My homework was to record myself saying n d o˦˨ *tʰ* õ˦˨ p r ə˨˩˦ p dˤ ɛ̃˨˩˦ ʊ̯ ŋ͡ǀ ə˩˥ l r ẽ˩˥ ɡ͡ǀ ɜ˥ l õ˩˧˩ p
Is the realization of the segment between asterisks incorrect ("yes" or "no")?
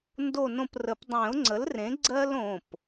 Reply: yes